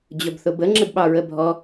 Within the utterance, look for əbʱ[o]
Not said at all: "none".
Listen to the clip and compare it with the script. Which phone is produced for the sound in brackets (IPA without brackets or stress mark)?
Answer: ɔ